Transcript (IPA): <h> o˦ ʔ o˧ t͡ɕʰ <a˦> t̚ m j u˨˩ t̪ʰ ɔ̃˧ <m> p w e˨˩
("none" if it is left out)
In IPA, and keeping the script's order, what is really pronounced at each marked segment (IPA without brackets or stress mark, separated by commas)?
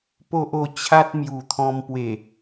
p, a˦, m